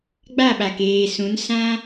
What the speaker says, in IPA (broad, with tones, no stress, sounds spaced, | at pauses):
ɡ͡b a˦˨ ɓ a˨ k eː˨ s ũ˨˦ n s ã˦